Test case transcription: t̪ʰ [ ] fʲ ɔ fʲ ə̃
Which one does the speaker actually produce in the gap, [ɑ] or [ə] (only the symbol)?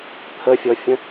ə